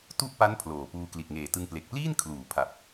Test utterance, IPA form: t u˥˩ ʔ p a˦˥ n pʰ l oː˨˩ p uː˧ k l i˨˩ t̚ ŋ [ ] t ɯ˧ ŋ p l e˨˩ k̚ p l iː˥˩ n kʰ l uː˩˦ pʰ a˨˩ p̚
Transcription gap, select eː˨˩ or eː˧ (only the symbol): eː˨˩